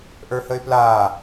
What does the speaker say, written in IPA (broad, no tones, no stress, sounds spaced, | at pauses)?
ʔ ə˞ h ə ɪ̯ p l aː